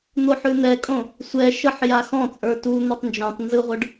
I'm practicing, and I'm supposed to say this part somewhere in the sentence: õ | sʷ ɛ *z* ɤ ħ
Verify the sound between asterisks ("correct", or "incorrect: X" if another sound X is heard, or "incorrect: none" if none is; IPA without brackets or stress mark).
incorrect: ʃ